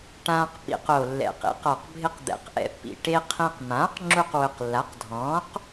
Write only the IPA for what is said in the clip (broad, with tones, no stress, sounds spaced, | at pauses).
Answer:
ʈ ãː˧ q p ḭ˧ q o˨˩ lː ɛ̰˨˩ q ḭ˩˥ q ɔ˨˩ q bʱ ɪ˧ q d̪ ɛ̰˩˥ q ʔ ɛ̰˧ pː ḭ˨˩ ʈ e˧ qʰ ẽ˧ q m ãː˩˥ q ŋ͡ǁ u˧ q w ʊ˨˩ q lː a˩˥ q dʱ ɔ̃ː˩˥ q